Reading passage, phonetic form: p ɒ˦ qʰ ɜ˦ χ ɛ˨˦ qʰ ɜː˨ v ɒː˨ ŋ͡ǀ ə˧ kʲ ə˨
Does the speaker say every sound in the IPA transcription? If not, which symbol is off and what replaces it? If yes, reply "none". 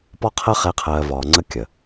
none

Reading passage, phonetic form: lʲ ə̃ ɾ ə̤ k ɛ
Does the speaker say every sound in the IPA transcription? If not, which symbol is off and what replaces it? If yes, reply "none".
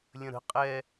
k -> qʼ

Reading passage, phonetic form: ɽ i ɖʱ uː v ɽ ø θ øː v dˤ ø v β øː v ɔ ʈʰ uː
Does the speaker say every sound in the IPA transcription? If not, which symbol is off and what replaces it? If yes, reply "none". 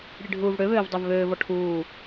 θ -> β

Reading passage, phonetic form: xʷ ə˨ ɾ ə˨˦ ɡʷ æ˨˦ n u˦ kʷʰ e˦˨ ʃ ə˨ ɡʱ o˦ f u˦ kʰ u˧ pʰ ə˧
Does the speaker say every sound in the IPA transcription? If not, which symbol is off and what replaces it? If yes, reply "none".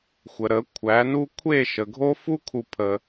ɡʷ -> kʷʰ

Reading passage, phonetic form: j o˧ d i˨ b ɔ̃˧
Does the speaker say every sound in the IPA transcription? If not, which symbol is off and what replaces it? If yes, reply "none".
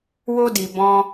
j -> w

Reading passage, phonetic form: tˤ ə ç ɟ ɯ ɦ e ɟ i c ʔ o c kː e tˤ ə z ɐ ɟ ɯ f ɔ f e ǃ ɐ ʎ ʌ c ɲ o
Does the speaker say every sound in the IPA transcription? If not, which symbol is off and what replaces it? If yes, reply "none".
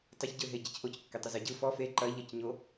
none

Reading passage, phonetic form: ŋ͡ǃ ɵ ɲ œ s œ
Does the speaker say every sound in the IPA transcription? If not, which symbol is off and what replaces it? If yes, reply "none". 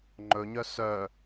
none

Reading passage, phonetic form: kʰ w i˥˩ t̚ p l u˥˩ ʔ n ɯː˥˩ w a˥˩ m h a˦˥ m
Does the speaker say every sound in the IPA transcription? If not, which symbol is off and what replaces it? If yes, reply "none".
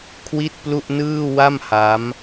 none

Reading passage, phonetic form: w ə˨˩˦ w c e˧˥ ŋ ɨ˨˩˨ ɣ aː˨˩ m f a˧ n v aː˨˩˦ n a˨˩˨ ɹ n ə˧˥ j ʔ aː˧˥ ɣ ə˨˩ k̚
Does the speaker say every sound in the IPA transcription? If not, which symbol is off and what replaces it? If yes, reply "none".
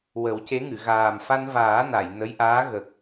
ɹ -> j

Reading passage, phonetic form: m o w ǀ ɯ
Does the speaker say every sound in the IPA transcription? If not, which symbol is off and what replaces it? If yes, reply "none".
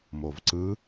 w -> v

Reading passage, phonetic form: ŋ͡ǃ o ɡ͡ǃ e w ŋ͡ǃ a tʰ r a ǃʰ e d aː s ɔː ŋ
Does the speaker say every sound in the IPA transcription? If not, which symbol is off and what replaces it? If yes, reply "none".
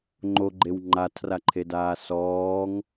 none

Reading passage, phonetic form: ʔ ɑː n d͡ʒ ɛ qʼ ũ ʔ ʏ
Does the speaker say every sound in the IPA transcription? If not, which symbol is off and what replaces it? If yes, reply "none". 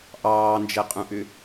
none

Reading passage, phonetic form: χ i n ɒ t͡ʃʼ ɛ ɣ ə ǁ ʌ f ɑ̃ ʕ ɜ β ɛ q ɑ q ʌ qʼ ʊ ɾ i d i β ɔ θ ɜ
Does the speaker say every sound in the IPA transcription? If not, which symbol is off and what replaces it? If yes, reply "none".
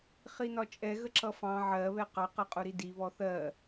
none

